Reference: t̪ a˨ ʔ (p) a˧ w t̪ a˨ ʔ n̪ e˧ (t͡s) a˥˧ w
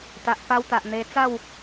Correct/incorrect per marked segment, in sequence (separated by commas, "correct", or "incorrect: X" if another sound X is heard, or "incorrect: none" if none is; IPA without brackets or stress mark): correct, correct